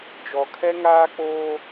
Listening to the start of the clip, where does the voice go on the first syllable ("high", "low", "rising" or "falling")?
low